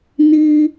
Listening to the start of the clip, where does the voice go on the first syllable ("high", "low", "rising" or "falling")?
high